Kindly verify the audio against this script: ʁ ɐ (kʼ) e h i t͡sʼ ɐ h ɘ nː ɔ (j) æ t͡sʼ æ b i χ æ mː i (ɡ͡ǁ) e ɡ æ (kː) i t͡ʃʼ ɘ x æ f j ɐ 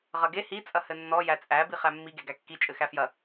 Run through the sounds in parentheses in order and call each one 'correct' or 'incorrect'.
incorrect: ɡ, correct, incorrect: ɡ, correct

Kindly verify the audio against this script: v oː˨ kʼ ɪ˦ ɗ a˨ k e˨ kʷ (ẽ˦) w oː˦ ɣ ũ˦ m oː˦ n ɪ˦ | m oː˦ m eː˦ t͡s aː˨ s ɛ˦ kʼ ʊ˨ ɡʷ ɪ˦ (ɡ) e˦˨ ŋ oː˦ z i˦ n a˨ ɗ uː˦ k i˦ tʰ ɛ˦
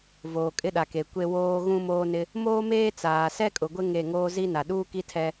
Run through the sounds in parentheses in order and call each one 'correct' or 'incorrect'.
incorrect: e˦, incorrect: ŋ

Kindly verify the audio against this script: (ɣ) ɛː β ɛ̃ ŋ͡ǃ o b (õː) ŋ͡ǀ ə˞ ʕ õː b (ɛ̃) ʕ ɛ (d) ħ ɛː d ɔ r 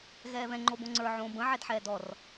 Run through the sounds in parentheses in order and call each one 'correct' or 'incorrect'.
correct, incorrect: õ, incorrect: ə̃, correct

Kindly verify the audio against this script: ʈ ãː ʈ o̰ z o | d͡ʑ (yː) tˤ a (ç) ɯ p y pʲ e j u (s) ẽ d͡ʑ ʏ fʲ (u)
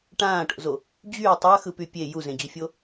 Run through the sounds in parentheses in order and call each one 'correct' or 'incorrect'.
correct, incorrect: x, incorrect: z, incorrect: o

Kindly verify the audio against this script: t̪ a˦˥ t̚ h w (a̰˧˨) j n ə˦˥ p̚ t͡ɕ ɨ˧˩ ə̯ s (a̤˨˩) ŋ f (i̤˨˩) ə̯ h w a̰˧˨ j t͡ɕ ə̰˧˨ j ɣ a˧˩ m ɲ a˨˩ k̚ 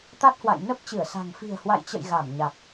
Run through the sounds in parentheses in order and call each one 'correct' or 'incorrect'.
correct, correct, correct

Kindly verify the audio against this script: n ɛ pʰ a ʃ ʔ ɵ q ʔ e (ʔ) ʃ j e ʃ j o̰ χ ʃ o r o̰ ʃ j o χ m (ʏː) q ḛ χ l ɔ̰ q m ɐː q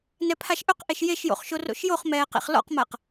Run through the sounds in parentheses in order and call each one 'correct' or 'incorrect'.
incorrect: none, incorrect: ɛː

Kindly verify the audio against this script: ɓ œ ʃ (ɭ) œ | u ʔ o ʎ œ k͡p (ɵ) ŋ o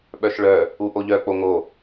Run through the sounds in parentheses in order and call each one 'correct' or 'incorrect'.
correct, incorrect: o

